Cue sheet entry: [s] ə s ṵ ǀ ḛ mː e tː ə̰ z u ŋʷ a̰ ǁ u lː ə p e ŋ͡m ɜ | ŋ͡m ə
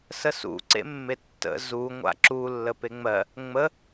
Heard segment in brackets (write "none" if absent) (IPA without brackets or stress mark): s